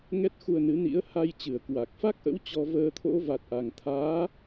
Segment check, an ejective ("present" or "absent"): absent